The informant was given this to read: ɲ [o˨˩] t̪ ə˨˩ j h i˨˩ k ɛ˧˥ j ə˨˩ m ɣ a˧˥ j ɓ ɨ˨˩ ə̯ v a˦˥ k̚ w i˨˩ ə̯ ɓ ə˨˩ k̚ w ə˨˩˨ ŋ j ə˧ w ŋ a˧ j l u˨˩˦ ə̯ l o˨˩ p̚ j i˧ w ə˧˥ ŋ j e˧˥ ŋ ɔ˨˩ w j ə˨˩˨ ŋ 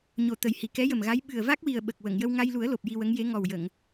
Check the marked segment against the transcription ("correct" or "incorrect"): correct